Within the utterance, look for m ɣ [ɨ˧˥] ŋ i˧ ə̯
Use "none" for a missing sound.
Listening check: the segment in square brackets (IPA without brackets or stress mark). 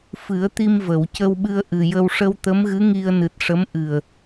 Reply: ɨ˧˥